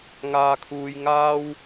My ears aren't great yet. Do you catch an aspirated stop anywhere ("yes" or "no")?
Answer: yes